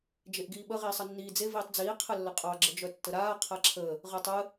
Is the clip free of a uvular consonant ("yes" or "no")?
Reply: no